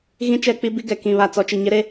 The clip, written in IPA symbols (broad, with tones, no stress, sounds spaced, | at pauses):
ɣ ĩ˦ t͡ʃ ɛ˦˨ k͡p i˦ b i˦ ɡ ɛ˨ k ĩ˨ β a˨ t͡s ɔ˨˦ t͡ʃ i˨ ɲ ɪ˦ ɾ e˦